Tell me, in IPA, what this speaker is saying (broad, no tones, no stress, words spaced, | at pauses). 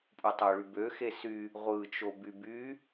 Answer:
pʼutˤøɭybø xesy | ʁʷɯ t͡ʃobyby